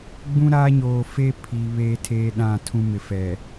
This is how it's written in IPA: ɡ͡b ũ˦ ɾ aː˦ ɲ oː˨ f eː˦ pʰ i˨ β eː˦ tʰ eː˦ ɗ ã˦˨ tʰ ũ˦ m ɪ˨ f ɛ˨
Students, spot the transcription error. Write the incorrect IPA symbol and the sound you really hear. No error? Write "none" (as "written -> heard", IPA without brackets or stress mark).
none